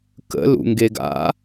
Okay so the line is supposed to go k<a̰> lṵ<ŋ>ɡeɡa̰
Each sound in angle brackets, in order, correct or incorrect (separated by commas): incorrect, correct